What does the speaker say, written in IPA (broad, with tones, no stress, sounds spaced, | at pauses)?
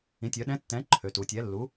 ĩ˩˧ tʲ œ˩˧ ɗ ɛ̃˨˥ tː ɛ̃˨˥ ǃʰ ø˩˧ t u˩˧ tʲ ɛ˨˥ lː u˨˥